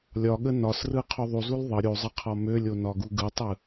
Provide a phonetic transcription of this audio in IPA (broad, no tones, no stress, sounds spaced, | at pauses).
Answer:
lʲ ɒ ɠ ə n ɒ s r ɯ qʰ u ðˤ u z u l ðˤ ə ɾʲ u zˤ ə qʰ ɒ m ø lʲ o n ɒ ɡ u ɡ ɯ tˤ ɯ